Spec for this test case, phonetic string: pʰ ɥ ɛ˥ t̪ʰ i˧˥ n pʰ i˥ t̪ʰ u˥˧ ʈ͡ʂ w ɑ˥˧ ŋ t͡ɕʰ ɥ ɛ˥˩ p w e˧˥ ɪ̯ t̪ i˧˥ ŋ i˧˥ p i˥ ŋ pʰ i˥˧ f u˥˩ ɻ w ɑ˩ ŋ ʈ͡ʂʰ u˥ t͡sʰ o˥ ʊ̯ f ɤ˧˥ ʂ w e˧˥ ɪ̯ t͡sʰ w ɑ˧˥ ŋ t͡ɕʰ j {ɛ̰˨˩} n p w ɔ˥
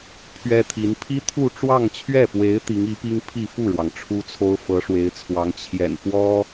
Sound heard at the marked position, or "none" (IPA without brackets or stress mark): ɛ̰˨˩